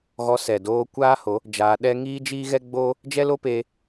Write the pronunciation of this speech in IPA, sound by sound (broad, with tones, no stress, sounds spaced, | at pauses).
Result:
ɣ ɔ˧ s ɛ˨ d oː˧ kʷ aː˦ h o˨˦ | d͡ʒ aː˧ ɗ ɛ˦ ŋ iː˦ d͡ʒ i˦ ɣ ɛ˦ ɡ͡b o˦ | d͡ʒ ɛ˦ l o˦ p eː˧